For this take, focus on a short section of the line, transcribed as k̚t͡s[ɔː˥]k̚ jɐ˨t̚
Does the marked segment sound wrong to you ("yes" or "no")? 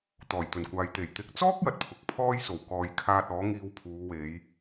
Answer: no